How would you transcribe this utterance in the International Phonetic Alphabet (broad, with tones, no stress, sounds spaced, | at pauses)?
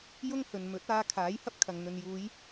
j ʊ˥ ŋ h ɵ˨ n m ɵ˨˥ t̚ aː˧ kʰ aː˨˥ j h ɐ˥ p̚ kʰ ɐ˨ ŋ n̪ ɵ˨ n j uː˨˧ j